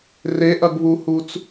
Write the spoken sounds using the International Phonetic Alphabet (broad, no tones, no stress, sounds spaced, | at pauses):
r e ʔ ɐ ɡ β u h u t͡s